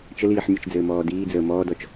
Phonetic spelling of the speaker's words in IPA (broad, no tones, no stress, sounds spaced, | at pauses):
t͡ʃ ə l iː ħ mʲ ə t͡ʃ d͡z ɘː m ɔː d iː d͡z əː m ɔː d ɔ t͡ʃ